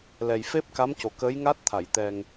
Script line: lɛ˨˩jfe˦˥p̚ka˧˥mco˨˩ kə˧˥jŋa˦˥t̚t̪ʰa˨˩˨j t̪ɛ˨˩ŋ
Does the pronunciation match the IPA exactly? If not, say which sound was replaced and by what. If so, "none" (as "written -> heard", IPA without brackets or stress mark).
none